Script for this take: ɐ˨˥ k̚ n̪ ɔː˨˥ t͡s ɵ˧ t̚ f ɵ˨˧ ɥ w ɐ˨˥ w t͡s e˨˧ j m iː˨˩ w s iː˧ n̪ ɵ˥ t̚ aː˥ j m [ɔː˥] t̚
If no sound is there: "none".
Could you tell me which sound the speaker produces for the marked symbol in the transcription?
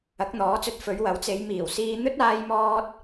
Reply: ɔː˥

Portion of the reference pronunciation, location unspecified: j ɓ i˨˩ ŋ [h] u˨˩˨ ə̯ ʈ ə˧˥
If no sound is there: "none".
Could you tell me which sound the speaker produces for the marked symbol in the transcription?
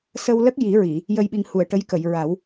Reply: h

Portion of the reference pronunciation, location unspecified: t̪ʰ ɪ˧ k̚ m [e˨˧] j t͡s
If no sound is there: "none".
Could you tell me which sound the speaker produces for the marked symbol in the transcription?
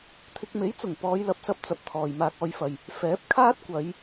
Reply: e˨˥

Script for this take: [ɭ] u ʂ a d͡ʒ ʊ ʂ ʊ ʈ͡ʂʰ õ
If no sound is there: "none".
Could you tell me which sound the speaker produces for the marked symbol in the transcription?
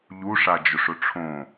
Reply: ʎ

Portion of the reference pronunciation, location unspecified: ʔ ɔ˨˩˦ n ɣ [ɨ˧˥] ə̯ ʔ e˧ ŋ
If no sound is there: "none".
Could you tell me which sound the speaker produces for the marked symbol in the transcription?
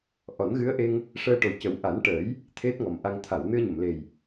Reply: ɨ˧˥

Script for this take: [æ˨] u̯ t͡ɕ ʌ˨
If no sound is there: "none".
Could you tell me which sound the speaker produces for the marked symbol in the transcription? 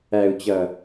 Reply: æ˨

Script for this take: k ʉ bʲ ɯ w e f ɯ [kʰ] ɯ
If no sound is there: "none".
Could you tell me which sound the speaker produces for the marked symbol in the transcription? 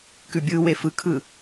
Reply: kʰ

